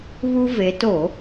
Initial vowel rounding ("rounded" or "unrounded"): rounded